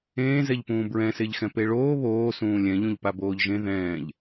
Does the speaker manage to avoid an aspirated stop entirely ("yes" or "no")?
yes